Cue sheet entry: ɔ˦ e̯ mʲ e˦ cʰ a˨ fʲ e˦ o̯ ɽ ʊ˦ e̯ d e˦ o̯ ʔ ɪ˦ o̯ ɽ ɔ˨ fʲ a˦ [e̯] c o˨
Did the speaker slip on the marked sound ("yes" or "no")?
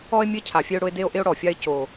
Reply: no